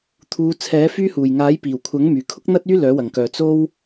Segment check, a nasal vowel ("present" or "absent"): absent